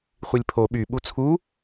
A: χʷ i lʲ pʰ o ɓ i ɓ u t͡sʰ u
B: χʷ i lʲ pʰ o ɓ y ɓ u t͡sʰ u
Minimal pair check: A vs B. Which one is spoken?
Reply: B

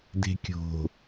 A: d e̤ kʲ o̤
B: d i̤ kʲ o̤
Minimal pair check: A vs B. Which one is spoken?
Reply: A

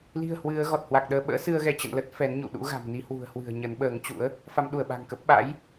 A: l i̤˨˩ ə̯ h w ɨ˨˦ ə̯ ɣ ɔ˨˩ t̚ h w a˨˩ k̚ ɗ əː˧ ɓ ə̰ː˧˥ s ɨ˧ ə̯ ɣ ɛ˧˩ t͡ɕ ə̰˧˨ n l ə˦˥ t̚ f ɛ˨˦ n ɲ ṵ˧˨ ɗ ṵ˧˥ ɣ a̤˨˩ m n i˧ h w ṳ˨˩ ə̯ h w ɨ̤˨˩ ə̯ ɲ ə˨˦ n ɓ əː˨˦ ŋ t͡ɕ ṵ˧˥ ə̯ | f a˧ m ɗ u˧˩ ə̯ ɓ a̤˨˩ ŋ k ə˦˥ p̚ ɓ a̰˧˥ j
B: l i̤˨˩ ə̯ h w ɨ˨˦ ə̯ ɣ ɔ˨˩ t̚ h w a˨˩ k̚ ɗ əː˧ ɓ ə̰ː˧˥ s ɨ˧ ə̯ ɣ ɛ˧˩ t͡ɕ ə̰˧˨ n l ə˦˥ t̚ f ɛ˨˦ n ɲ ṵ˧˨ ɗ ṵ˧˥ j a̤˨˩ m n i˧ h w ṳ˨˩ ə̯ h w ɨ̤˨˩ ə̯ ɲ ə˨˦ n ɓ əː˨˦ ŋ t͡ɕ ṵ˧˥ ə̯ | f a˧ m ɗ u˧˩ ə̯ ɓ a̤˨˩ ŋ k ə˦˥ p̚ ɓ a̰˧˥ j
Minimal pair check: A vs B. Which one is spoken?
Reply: A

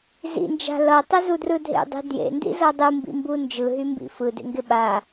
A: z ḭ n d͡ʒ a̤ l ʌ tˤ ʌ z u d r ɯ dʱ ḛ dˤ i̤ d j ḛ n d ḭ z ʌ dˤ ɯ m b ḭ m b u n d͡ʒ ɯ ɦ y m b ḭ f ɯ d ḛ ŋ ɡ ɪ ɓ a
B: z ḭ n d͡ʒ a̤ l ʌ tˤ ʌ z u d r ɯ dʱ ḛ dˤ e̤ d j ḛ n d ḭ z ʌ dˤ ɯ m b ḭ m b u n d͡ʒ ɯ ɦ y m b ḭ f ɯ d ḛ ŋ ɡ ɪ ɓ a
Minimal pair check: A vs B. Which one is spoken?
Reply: A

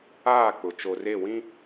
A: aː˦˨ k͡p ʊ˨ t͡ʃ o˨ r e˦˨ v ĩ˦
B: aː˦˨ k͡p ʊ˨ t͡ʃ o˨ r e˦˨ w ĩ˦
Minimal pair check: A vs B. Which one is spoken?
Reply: B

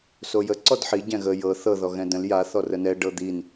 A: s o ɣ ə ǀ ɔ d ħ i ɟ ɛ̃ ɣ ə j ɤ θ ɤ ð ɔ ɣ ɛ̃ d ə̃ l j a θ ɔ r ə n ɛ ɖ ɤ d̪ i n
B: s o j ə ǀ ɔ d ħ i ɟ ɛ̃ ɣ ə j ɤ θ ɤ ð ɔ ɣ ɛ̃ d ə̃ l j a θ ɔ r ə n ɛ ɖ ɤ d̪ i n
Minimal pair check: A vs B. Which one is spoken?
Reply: B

